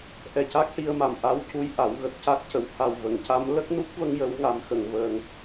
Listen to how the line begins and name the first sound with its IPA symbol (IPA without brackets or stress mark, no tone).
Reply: ʔ